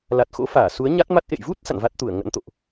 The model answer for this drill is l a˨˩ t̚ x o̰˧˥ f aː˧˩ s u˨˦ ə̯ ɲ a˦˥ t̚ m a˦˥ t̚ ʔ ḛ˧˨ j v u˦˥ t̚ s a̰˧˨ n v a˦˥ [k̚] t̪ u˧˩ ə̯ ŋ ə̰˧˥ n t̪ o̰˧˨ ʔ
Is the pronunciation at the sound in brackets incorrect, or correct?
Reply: incorrect